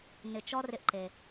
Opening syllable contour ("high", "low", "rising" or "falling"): low